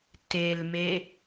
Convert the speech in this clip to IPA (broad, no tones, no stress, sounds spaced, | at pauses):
t e l m e